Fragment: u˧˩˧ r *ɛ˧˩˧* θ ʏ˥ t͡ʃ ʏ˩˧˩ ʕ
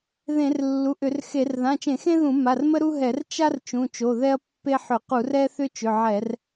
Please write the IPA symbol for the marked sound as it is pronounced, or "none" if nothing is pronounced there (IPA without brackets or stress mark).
ɛ˥